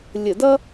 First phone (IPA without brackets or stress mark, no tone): lʲ